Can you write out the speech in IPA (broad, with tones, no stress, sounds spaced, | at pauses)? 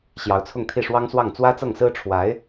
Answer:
ɕ j ɑ˧˥ ʊ̯ t͡sʰ ʊ˥˧ ŋ t̪ʰ i˥˩ ʂ w ɑ˥ ŋ s w ɑ˥˩ ŋ t͡s w ä˥ t͡s ɤ˥˩ ŋ s ɹ̩˥ ʈ͡ʂʰ w a˧˥ ɪ̯